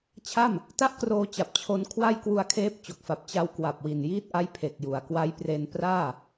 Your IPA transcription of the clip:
t͡ɕʰ a˥˩ m | t a˥˩ ʔ k r oː˧ t͡ɕ a˨˩ p̚ t͡ɕʰ o˧ n kʰ w a˥˩ j k w u˧ a̯ kʰ eː˦˥ p̚ t͡ɕ o˨˩ k̚ f a˨˩ p̚ t͡ɕ a˧ w k w a˨˩ p̚ w i˨˩ n j iː˦˥ t̚ ʔ a˦˥ j pʰ e˨˩ k̚ j u˩˦ a̯ k w a˦˥ j p r e˧ n p r aː˥˩

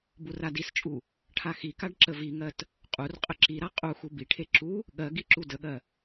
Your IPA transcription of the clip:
b u r a d i s t͡ʃʼ u | ʈʰ a x i k a ɖ ǁ ə v i ŋ ɜ t | qʼ u r qʼ ə ǁ i ɾ a qʼ u x u b i ʈʰ e ǁ u | ɠ ɜ ɡ i ǁ u d ə ɠ ɜ

